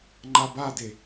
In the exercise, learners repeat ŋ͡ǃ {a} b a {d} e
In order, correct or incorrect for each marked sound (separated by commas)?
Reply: correct, correct